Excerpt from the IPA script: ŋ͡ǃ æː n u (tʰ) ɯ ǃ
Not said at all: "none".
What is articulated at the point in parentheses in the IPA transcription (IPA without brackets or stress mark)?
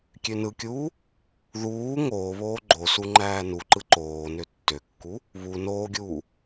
ǃ